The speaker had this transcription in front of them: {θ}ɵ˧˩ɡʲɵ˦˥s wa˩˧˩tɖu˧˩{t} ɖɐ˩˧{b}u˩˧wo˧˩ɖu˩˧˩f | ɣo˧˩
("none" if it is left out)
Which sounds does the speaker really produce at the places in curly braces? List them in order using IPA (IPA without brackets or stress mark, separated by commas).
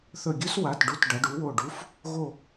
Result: θ, t, ɖ